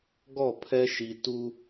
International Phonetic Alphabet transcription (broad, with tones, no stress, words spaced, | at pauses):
ɡɔ˦˨pʰɛ˦ ʃi˨ tu˦